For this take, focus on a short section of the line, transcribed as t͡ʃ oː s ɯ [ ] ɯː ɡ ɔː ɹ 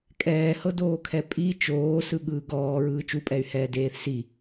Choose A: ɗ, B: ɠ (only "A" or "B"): B